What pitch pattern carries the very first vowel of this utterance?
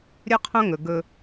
high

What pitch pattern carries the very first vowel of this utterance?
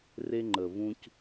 high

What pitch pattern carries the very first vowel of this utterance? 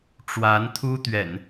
rising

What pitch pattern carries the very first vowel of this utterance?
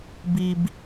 low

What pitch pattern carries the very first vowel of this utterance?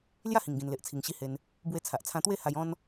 falling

